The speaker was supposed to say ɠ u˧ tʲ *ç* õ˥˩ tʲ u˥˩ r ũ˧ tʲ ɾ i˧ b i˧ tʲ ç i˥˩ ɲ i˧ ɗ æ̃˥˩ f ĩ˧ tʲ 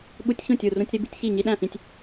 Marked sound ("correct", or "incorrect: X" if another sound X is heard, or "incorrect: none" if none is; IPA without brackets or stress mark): correct